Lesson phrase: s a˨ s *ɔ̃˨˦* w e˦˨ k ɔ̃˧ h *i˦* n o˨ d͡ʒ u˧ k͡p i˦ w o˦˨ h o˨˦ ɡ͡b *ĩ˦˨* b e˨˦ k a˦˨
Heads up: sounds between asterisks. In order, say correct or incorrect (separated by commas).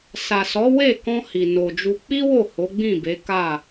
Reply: incorrect, incorrect, correct